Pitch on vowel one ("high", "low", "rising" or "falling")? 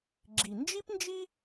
low